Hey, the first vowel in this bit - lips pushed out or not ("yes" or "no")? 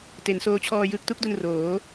no